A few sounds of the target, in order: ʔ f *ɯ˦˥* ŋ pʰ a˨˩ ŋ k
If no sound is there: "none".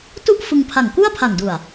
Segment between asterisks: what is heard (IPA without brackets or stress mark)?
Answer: ɯ˧